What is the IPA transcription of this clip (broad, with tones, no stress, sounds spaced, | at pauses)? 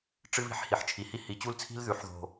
ʈ͡ʂ ɨ˥ β i̤˥ ħ h i˨˦ ħ t͡ʃʰ i˨˩ h i˥ h i˨˦ t͡ɕ u˥ l t͡sʰ i̤˥ l ð ʉ˨˦ ħ ð o̤˨˩